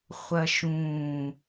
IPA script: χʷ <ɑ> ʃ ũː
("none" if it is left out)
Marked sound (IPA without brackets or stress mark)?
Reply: ɐ